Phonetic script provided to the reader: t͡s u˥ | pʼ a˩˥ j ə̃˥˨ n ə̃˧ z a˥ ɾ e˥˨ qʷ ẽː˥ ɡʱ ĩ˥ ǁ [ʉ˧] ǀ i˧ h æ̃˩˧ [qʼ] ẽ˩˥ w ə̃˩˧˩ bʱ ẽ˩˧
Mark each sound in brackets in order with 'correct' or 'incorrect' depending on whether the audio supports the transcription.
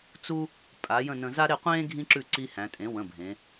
incorrect: ʉ˥˨, incorrect: tʼ

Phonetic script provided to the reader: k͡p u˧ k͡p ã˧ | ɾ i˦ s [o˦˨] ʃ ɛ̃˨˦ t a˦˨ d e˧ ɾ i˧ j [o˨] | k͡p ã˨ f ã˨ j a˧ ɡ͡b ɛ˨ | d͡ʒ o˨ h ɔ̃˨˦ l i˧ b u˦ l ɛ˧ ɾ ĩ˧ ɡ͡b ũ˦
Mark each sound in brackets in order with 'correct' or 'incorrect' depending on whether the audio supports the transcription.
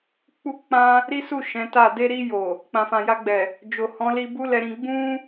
incorrect: u˦˨, correct

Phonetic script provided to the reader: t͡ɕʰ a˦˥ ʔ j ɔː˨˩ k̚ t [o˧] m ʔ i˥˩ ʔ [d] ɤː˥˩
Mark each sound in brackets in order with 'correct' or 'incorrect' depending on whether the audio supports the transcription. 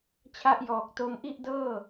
correct, correct

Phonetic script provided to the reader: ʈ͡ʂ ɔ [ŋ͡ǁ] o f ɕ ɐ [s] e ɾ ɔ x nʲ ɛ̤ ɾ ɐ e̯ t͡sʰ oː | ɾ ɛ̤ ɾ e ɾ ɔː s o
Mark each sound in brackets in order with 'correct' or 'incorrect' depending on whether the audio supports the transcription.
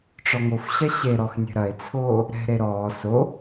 incorrect: ŋ, incorrect: ɕ

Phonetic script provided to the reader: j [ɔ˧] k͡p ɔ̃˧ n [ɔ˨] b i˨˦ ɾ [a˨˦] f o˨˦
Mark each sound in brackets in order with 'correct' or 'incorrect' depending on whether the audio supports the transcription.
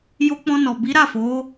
incorrect: o˧, correct, incorrect: a˦˨

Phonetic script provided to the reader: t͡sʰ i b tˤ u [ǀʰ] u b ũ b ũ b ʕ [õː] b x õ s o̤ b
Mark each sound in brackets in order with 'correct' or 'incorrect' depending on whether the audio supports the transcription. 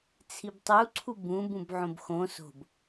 correct, incorrect: õ

